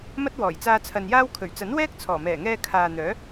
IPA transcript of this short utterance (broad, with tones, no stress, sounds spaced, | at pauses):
m ɐ˥ t̚ w ɔː˨˩ j t͡s aː˧ t͡sʰ ɐ˨ n j aː˥ w kʰ ɵ˨˩ ɥ t͡s ɐ˨˥ n w ɛː˥ k̚ t͡sʰ ɔː˨˩ m ɛː˨˩ ŋ ɛː˧ kʰ aː˨ n̪ œː˨˥